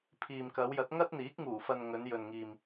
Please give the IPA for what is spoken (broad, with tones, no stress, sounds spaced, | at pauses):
pʰ iː˨ m k ɐ˨˧ w j ɐ˨˥ t̚ ŋ ɐ˥ t̚ n̪ iː˨˥ k̚ ŋ uː˨˩ f ɐ˨ n ŋ ɵ˨˧ n j ɵ˨ n ŋ iː˨ m